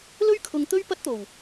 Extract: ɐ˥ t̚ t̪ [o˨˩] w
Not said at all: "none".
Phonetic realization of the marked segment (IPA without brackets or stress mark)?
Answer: o˨˩